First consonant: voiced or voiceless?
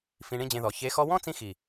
voiceless